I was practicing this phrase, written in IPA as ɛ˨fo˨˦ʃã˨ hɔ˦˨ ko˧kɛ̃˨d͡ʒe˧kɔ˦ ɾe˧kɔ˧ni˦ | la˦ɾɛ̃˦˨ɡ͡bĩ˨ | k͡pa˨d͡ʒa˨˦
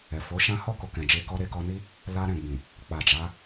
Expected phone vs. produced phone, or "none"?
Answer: ã˨ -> ã˦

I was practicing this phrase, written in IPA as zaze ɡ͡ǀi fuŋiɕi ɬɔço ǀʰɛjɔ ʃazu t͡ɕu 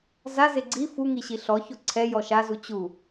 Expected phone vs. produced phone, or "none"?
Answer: none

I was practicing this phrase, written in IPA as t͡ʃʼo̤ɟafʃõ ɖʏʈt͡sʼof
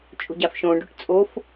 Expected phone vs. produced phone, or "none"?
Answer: none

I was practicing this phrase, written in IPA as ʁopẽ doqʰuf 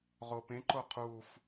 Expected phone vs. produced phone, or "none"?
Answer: d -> ǃ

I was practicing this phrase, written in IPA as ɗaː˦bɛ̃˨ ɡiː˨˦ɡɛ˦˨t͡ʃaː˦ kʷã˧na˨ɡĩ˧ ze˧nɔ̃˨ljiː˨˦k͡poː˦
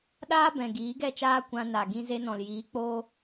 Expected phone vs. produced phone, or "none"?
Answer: none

